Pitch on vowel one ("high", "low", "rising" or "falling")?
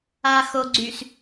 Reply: low